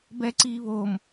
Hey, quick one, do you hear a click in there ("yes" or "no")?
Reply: yes